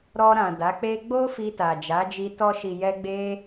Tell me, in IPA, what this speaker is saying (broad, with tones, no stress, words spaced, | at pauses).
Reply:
ɾɔ˧ɾã˨ da˨˦k͡pe˦ ɡ͡bo˦ fi˧ta˨d͡ʒa˨˦d͡ʒi˧ tɔ˧ʃi˨jɛ˧ɡ͡be˧